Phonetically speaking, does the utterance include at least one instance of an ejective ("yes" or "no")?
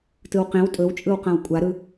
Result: yes